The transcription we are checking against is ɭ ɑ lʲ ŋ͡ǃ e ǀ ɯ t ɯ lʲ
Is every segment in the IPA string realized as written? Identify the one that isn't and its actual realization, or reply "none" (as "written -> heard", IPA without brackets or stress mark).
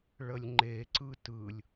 ɑ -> ə